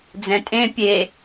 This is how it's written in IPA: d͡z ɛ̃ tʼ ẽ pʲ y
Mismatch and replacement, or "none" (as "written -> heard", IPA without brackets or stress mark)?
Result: y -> e